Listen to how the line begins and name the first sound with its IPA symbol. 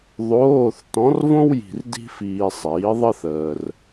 ðˤ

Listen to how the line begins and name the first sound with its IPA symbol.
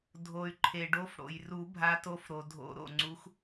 dʱ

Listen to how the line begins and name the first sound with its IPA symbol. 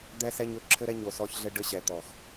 d̪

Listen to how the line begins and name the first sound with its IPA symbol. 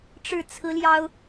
ʈ͡ʂ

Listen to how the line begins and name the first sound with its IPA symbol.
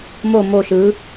m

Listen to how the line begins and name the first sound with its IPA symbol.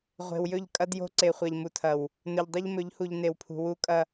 ʁʷ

